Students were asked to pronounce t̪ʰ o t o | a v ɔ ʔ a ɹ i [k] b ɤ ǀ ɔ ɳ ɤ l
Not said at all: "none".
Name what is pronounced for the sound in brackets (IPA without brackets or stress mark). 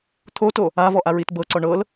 t